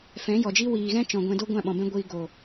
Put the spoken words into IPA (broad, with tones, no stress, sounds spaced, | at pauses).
f ɛ̃˨˦ j ɔ˨ d͡ʒ i˦ w iː˨ ɣ ɛ̃˦ t͡ʃ ɔ̃˨ ɡʷ ɛ̃˧ d o˦ ɡʷ ã˦˨ ɓ ɔ̃˨ b ɛ̃˦ ɡʷ iː˧ ɡ o˨